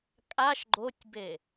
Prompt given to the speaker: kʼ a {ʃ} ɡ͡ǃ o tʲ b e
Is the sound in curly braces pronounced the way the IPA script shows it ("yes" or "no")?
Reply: yes